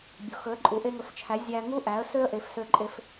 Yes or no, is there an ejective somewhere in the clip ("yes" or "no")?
yes